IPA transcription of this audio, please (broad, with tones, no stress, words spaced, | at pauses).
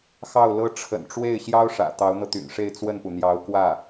xɑ˥˩ʊ̯lɤ˥ ʈ͡ʂʰə̰˨˩nʈ͡ʂwe˥˩ɪ̯ɕjɑ˥ʊ̯ ʂä̰˨˩ t̪ɑ˧˥ʊ̯n̪ɤ˧t̪y̰˨˩nʂe˥˧ɪ̯ t͡swə˥˩npu˩n̪jɑ˧˥ʊ̯ kwä˥˩